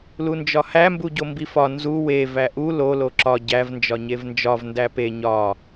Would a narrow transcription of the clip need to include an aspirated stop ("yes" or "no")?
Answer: no